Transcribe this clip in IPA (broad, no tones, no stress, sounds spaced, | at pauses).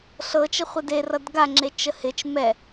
ɬ ɤ t͡ʃ ə χʷ ɛ d e r ʌ d ɡ a ŋ͡ǁ e t͡ʃ ə h ɪ t͡ʃ m ɛ